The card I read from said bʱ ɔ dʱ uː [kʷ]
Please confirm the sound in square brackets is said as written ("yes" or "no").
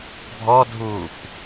yes